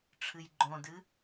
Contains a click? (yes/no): yes